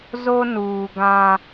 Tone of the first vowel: high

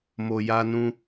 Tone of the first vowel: low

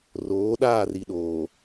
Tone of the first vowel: rising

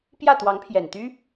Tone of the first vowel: falling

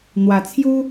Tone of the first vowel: low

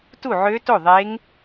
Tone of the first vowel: falling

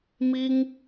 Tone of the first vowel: high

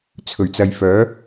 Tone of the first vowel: low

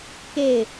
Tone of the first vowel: falling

